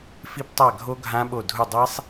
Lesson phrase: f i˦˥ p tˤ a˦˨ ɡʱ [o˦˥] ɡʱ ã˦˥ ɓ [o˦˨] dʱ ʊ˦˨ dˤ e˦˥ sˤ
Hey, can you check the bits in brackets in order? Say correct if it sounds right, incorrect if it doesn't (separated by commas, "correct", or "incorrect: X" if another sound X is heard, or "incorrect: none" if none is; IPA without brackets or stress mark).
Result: correct, correct